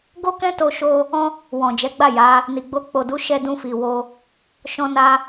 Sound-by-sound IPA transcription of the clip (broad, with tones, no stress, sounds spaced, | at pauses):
ɡ o˦ k ɛ̃˦ t o˦ ʃ o˦ | ɔ̃˦ | w ɔ̃˨ d͡ʒ ɛ˨˦ ɡ͡b a˦˨ j a˨˦ | n i˨ ɡ͡b o˧ k͡p o˨ d u˨˦ ʃ ɛ˧ d ũ˧ f i˨ w o˧ | ʃ ɔ̃˧ n a˧